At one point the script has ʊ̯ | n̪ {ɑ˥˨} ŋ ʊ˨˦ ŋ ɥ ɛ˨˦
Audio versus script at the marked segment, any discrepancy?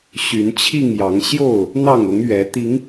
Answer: no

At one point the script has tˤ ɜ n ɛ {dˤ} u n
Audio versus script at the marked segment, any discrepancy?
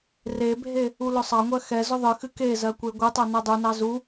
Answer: no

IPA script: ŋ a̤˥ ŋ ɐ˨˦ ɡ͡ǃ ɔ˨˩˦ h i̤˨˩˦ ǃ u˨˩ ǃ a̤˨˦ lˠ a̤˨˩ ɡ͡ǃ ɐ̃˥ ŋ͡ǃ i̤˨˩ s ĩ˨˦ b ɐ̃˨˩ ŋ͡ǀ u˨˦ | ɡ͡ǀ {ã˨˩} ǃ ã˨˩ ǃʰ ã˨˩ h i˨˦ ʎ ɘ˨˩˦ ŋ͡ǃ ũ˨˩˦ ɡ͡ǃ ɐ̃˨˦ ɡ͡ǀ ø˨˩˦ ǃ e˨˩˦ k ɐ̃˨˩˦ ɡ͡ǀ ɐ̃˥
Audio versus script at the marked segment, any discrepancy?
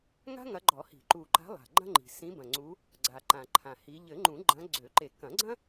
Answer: yes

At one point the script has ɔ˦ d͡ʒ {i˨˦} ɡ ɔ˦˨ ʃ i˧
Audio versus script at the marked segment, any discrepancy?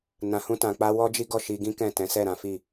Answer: yes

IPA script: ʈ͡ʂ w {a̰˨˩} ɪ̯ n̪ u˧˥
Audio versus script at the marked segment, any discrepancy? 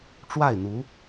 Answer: yes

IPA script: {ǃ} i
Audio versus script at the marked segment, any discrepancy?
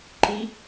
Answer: no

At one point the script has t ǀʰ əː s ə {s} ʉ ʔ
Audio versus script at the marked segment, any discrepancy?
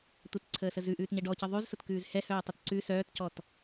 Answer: yes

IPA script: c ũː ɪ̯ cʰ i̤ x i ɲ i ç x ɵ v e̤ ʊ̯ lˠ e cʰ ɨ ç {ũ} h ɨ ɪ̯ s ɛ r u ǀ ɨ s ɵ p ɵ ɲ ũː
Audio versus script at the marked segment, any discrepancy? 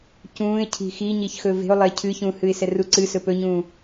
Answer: no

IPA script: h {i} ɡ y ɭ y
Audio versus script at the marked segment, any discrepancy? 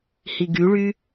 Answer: no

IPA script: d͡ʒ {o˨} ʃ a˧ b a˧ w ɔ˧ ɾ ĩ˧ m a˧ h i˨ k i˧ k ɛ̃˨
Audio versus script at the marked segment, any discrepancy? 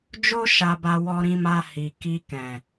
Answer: yes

